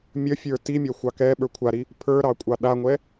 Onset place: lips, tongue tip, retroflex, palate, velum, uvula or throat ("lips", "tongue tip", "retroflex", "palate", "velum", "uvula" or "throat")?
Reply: lips